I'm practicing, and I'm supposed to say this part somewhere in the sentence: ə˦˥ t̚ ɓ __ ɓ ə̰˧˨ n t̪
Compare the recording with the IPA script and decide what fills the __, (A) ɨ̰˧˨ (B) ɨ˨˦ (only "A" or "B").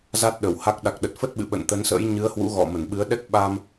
A